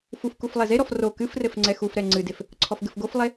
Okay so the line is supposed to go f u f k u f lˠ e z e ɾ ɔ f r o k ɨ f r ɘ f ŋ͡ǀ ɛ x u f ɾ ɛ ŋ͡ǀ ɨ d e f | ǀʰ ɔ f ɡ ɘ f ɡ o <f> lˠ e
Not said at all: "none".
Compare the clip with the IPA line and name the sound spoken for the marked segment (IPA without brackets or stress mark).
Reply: f